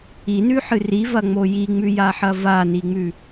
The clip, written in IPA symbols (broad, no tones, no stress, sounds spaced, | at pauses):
i n ʉ ħ ɨ r i v ɐ ŋ͡m o j i ŋ͡m ʉ j a ħ ɐ v a n i ŋ͡m ʉ